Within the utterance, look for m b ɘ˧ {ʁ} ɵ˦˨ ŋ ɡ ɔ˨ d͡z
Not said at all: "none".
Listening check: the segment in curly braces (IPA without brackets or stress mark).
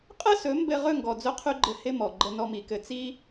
ʁ